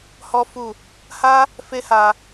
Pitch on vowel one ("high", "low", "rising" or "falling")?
high